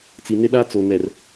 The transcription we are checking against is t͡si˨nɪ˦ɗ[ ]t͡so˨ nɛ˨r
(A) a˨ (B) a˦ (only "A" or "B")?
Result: B